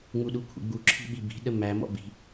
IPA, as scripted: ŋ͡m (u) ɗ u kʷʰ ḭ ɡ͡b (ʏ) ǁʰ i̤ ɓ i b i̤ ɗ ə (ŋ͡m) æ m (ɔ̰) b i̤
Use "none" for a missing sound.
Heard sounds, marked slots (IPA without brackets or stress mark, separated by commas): u, u, m, ɔ̰